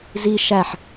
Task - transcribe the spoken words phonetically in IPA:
zi ʃæħ

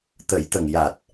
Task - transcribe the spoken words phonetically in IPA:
t̪ə˨˩˦jt̪ə˨˩ŋ ja˨˩t̚

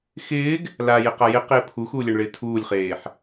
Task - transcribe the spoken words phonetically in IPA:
xɪːɡ | lajɪqa jɪqɪː pʰuxuːlʲɛɳɭɪː tʰuːlʲχeːħ

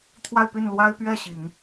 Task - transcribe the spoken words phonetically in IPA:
t̪ʰwa˥˧ɪ̯py˥˩n lwa˥ɪ̯pɥɛ˥˩ ɕi˨˩˦ŋ

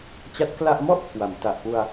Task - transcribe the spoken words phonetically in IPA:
t͡ɕa˦˥t̚kla˥˩ʔ mɔ˥˩ʔkʰwa˩˦m ta˨˩ʔpu˧a̯

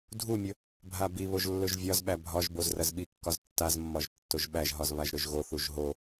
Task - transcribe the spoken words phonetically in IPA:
dʱumʲɵ | bʱabiβoʒ lːɵʒvʲɒzɓæ bʱɒʒboz rɐzɓikːɒz tːazmːɒʒ tːoʒɓæʒɦɒz βaʒɾɵʒɣoθuʒ ɦo

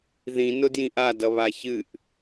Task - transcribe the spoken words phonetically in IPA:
ðĩnʊ djĩʔadʌβa çɨʔ

